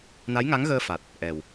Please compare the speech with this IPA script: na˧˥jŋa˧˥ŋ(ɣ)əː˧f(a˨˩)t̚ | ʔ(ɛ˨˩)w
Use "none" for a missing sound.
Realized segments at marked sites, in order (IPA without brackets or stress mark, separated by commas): ɣ, a˨˩, ɛ˨˩